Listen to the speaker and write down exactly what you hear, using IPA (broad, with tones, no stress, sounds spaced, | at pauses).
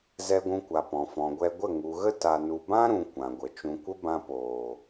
z ɛ˧ ɡʷ ũ˧ kʷ a˨ p ɔ̃˨ f ɔ̃˨ ɡʷ ɛ˧ ɡʷ ə˦˨ ŋ u˨ ɣ ə˦ t a˧ n u˧ b ã˦ ɾ ũ˨ kʷ ã˨ ɡʷ ə˨ t͡ʃ ũ˨ kʷ ə˦ b ã˧ p oː˨